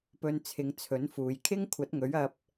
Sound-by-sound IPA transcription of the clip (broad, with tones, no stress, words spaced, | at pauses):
pɵ˧nt͡sʰɪ˨˧ŋt͡sʰɵ˨˥nfuː˨j kʰɪ˥ŋkʷʰɐ˨˥t̚ŋɵ˨˥ɥ ɐ˧p̚